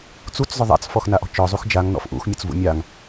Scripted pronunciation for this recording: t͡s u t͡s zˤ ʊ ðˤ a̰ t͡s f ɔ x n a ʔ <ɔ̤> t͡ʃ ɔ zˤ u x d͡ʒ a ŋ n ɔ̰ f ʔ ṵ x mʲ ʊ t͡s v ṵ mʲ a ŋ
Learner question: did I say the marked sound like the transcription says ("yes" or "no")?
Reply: yes